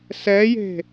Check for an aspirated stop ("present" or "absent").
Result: absent